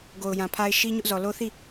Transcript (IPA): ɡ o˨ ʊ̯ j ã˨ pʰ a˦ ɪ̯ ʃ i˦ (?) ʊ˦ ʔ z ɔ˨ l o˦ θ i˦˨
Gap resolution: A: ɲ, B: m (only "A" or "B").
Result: A